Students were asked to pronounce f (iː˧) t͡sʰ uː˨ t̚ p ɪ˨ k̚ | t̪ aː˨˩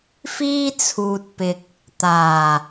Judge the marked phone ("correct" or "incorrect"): incorrect